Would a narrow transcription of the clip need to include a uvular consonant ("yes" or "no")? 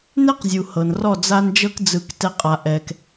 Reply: yes